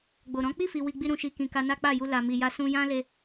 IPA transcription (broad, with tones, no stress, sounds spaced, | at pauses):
ɡ͡b o˨ ɾ ɔ̃˨˦ k͡p i˦˨ f i˨ w i˧ ɡ͡b i˦ ɾ ũ˧ ʃ i˧ k ĩ˨ k a˧ n a˦ k͡p a˦˨ j u˧ l a˨ m i˨ j a˧ s ũ˧ j ã˦ l e˧